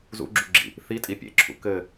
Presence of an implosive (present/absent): absent